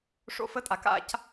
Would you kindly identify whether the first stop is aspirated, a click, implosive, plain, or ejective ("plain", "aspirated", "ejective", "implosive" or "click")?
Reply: ejective